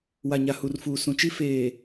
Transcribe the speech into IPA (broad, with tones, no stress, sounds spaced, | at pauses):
w a˨ ɲ a˨ h u˨ r f uː˨ s ũ˨ t͡ʃ i˦ f eː˨